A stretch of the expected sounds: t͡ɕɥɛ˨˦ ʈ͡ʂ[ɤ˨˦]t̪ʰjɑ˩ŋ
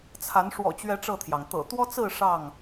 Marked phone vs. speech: incorrect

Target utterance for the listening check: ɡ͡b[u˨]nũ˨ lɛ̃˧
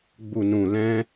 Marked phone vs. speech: correct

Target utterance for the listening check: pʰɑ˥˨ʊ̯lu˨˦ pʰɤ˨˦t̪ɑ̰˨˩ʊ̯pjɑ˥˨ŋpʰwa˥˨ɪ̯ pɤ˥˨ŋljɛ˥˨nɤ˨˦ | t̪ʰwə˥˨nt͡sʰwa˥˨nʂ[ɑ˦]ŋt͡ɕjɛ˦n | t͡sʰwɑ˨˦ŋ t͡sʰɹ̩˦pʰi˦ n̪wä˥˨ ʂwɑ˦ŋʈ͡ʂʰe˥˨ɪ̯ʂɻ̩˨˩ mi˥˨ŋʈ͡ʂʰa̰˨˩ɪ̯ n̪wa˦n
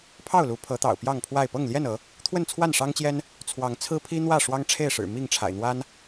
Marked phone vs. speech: correct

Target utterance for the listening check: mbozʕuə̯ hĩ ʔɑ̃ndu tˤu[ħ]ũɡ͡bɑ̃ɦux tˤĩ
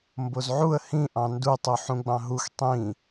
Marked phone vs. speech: correct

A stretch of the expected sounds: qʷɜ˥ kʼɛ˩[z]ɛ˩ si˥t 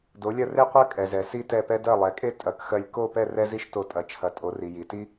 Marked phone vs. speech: correct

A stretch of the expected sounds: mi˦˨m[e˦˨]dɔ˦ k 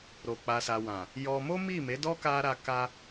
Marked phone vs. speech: incorrect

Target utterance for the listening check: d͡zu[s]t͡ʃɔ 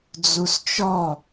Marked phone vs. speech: correct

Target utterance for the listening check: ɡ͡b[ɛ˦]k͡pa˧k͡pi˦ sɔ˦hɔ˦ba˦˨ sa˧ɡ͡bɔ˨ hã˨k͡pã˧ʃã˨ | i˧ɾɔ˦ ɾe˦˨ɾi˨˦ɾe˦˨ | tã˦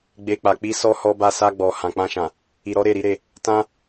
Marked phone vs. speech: incorrect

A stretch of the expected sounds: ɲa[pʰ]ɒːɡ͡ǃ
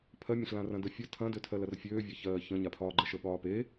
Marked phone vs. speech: correct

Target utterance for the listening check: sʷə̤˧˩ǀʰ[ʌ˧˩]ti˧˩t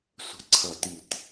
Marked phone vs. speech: correct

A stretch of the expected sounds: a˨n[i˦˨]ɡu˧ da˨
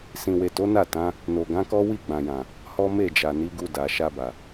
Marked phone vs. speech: incorrect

